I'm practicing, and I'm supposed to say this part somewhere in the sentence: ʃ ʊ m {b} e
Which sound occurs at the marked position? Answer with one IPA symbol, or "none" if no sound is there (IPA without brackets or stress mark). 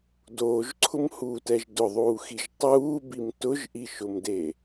d